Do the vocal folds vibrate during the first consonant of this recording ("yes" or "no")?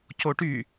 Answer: no